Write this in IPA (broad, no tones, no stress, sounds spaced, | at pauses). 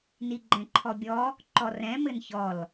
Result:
n i ɡ͡ǃ ɛ̃ ǃʰ ɔ bʲ ɔ | ǃ ɔ r ɛ̃ m ɘ n ç ɔ l